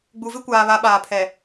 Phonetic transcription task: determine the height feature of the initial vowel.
high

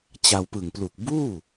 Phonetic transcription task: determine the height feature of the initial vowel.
low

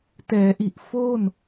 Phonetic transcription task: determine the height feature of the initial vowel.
mid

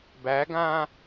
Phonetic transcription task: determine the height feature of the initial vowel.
low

